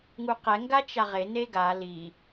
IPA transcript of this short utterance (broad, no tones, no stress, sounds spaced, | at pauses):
ŋ u q ɛ ŋ ɡ a t͡ʃ a ʁ e n e ɡ a l i